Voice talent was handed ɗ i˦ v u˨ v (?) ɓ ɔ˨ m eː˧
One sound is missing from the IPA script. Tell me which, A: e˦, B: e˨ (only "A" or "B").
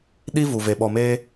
B